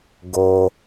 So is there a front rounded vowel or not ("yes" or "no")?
no